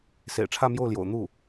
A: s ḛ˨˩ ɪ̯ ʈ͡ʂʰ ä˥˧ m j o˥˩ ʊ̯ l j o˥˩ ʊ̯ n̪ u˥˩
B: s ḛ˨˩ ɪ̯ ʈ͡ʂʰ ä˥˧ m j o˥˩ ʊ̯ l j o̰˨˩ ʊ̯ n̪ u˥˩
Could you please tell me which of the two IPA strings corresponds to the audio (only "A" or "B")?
B